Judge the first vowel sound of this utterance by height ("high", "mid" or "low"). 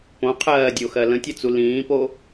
mid